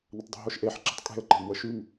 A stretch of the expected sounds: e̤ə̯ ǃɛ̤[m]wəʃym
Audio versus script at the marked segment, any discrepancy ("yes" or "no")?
no